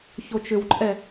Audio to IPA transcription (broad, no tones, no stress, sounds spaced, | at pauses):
ç o t͡ʃ ʏ w ǃʼ ɛ